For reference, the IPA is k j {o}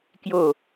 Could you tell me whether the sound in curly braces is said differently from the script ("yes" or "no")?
no